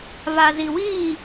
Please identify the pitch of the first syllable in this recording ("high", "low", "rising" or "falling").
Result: low